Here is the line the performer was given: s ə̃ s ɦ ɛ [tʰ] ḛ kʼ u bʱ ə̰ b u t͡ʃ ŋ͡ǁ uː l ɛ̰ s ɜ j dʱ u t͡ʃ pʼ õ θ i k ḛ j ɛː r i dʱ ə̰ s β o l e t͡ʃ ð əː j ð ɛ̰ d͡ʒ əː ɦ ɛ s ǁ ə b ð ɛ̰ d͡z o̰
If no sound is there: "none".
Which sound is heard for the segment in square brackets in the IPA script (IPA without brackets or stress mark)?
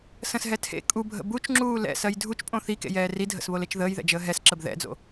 tʰ